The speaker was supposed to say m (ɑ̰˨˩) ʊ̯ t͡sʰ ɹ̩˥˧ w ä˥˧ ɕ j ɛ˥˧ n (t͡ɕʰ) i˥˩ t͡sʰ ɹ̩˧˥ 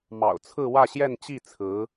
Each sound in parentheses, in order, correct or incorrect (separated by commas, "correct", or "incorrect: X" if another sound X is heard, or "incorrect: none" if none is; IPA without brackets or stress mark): correct, incorrect: t͡ɕ